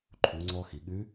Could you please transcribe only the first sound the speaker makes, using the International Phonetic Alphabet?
ǃʰ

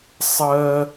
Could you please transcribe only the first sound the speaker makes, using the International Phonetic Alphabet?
sˤ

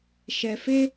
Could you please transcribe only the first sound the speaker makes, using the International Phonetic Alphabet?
ʃ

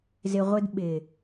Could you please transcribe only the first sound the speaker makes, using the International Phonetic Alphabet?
z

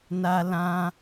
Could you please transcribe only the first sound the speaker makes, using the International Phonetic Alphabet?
n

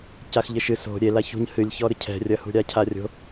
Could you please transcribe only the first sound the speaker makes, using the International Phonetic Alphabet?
c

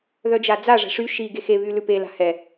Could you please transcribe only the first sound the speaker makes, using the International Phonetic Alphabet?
ð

